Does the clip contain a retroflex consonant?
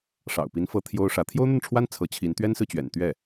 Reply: yes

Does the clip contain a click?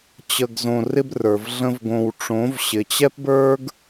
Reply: no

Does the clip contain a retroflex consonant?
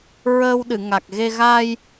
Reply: no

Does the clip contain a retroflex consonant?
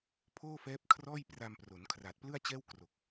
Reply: no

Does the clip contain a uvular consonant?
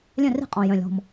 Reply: yes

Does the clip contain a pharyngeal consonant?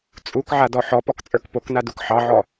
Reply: yes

